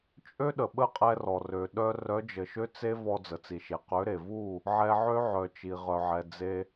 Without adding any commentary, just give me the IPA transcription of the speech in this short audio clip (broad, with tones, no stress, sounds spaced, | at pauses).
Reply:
t͡ʃʼ ø˦ ɗ ə˨ ɓ ə˦ qʼ ɛ˧ r ɔ˨ r ø˨ ɗ œ˧ r œ˨˦ d͡ʒ ə˨ ʃ ø˦ t͡s e˦ v ɔ˧ d͡z ə˨ t͡s i˨ ʃ e˨ q ø˨˦ ɾ e˨ v u˦˨ | ʕ ɛ˧ ʕ ø˦ ʕ œ˨ t͡ʃ i˨ ʁ œ˨ ʕ ɛ˨ d͡z e˧